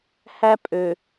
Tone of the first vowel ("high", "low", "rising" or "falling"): high